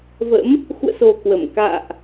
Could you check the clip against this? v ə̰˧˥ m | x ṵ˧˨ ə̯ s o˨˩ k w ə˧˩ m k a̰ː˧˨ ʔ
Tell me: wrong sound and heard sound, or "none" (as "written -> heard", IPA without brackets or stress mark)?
none